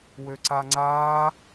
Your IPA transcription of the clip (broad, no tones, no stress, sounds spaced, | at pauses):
w ø ǀ a ŋ͡ǀ aː